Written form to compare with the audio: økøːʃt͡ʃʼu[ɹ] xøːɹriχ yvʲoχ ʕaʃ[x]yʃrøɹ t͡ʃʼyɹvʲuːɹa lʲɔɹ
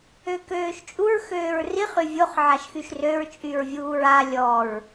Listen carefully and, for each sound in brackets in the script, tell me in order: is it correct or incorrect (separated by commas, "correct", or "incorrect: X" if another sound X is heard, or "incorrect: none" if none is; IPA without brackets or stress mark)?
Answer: correct, correct